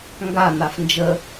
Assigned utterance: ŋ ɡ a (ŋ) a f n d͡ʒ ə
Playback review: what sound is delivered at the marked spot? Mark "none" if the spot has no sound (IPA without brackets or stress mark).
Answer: n̪